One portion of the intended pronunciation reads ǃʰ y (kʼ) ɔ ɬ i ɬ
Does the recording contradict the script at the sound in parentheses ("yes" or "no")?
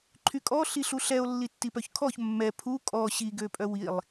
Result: no